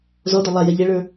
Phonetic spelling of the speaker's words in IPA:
z ɔ d ɔ lˠ a j ɛ ʎ ɛ ɭ ə˞

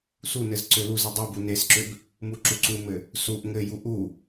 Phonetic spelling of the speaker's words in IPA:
s u n ɘ z ǀ ø l u z ɨ dˤ u b u n e s ǁ ø b | m u ǁ u ǀ u m ɘ | s u ʔ ŋ ɘ j u ʔ u

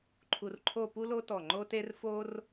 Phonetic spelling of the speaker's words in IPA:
ǃʰ u˧ r ǃʰ o˥˧ p u˥ l o˥ t ɔ˧˩ ŋ͡ǃ o˥ t e˥ r f o˥ r

